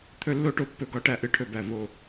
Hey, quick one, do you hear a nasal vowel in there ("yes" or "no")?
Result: no